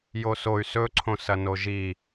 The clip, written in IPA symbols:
j o s o y̯ s ɵ ǀʰ õ s ɐ n o ʒ i

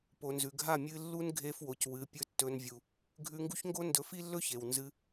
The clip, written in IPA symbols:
p o˨ n z ʉ˨ ɡʱ a˦˨ mʲ ɨ˧ lː u˦ n ɡʱ e˧ f w o˨ c w ɨ˨˦ pʲ ɵ˦ tː ɵ˦ n vʲ u˧ | ɡʱ ʉ˧ ŋ ɡ u˦ ç ŋ ɡ o˦ n d ɵ˧ f i˦ lː ɵ˦ ç e˨ w n z ɨ˧

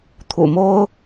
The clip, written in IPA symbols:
t̪ʰ ṵ˨˩ m o˥ ʊ̯

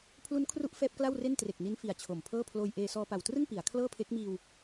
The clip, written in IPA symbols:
pʰ l u˦˥ n kʰ r u˦˥ ʔ f ɛː˦˥ p̚ k l a˥˩ w r e˥˩ n t r e˨˩ k̚ n i˦˥ n f i˨˩ a̯ t͡ɕʰ o˨˩ m pʰ ɤː˥˩ pʰ l oː˧ j ʔ eː˧ s ɔː˧ p a˨˩ w t r ɯ˥˩ ŋ p i˩˦ a̯ kʰ l ɤː˥˩ pʰ e˦˥ k̚ m iː˧ w

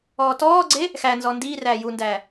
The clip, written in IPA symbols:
ɔː t ɔː ɡ͡ǀ e | x æ n z ɔ n d iː r æː j u n d æː

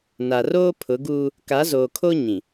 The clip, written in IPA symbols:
n a˨ r oː˦ pʰ ʊ˨˦ ɡ uː˦ | k a˨˦ z oː˨ kʰ o˦ ɲ ĩ˨

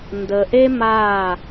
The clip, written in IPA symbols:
n d ə˨ ʔ e˦ m a˦˨

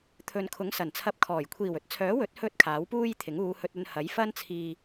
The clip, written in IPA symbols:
t̪ʰ ɵ˨ n kʰ ʊ˨˥ ŋ s ɐ˨˩ n t͡sʰ ɐ˧ p̚ kʰ ɔː˨˩ j kʷʰ iː˨˩ w ɵ˨˥ t̚ t͡sʰ œː˨˥ w ɵ˨˥ t̚ h ɵ˧ t̚ kʰ aː˨˥ w p uː˥ j t̪ʰ ɪ˨˥ ŋ uː˨˧ h ɵ˧ t̚ ɵ˧ n h ɐ˨˥ j f ɐ˥ n t͡sʰ iː˧

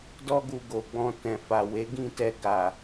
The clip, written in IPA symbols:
d ɔ˦ ɡ u˧ ɡ o˨ ɡ͡b ɔ̃˧ t ɛ̃˨ f a˨ w e˨˦ ɡ ĩ˦˨ t ɛ˧ ɡ a˨

